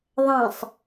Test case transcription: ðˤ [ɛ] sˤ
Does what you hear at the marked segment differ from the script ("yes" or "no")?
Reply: yes